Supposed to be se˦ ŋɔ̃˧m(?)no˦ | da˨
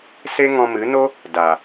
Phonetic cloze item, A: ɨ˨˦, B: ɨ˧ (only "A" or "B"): A